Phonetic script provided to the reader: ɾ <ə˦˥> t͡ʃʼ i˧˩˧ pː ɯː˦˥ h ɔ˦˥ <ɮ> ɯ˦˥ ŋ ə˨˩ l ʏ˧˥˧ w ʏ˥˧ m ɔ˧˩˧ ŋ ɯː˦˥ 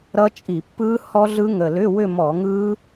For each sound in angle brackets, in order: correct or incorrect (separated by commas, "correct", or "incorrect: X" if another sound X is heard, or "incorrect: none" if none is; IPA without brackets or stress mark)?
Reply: incorrect: ʌ˦˥, correct